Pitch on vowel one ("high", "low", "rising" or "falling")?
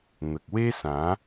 low